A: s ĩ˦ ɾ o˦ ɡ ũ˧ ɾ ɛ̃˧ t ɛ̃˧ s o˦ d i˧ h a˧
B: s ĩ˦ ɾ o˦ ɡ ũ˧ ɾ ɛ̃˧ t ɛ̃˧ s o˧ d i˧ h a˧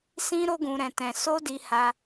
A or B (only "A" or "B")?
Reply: A